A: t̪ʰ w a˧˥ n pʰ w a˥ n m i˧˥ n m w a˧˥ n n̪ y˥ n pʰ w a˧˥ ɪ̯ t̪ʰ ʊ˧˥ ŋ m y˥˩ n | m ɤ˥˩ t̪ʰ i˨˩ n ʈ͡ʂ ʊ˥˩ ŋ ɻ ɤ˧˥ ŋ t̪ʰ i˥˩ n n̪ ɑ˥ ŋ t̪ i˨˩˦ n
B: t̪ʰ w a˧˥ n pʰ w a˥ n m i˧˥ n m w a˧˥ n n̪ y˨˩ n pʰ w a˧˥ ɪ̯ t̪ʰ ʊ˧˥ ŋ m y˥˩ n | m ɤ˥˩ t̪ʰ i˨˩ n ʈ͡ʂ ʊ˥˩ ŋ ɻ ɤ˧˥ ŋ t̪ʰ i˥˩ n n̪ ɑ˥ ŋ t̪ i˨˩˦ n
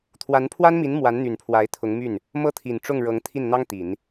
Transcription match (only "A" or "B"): B